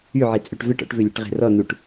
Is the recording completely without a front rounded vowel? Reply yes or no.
no